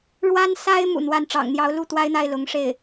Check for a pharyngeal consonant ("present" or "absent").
absent